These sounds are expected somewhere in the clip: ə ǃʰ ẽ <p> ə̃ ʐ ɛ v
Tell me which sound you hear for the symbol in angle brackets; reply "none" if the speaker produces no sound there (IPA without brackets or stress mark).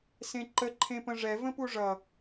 p